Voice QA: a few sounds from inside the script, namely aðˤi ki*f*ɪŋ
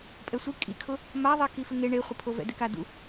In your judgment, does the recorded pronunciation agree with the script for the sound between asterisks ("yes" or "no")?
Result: yes